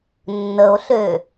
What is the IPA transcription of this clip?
nː ə o̯ ɬ ø

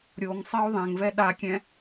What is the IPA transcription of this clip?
ɾʲ o ŋ sˤ ɜ o̯ ðˤ ɛ̃ ŋ v ɛ ɗ a kʲ ɛ̃

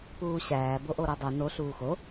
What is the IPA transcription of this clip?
p uː ɕ æː b o ʔ o ɾ o dˤ u n o ɬ uː x o

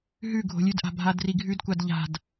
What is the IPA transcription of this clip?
ɦ ʉ ɡʱ o̤ lʲ ʉ d ʔ a̤ bʱ a d r i ɡʱ ʉ d kʷ a d ʎ a̤ d

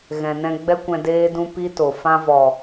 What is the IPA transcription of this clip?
ɣ ɛ̃˨ n ɛ̃˧ ɡ͡b ɛ˦ kʷ ɛ̃˧ d eː˦ d ũ˧ p i˦ t o˨ f ã˧ v ɔ˨

